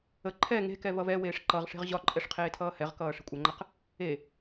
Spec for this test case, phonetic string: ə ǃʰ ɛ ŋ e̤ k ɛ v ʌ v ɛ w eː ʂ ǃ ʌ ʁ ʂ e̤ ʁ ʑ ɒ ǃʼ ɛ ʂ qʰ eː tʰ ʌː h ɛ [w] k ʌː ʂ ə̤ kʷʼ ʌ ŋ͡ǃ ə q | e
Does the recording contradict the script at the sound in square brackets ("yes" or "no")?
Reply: yes